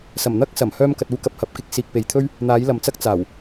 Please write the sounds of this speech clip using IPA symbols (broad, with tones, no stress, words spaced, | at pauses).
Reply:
sɐ˨˩mn̪ɐ˥k̚ sɐ˨˩m hœː˥mkɐ˧t̚uː˥kɐ˧p̚ hɐ˨p̚kɪ˥k̚ siː˨k̚pe˨jt̪ʰɵ˥ɥ | n̪aː˨˥jlɐ˨mt͡sɐ˥k̚ t͡saː˨˩w